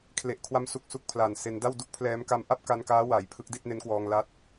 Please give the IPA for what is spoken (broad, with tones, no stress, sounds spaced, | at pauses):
kʰ l e˨˩ ʔ kʰ w a˦˥ m s u˨˩ k̚ s u˥˩ k̚ pʰ l a˨˩ n s e˧ n d a˥˩ w d u˥˩ k̚ pʰ l ɛː˦˥ m k a˦˥ m ʔ a˥˩ p̚ k a˧ n k aː˦˥ w a˩˦ j pʰ ɯ˦˥ k̚ d i˥˩ t̚ n e˦˥ n k w ɔː˧ ŋ l a˦˥ t̚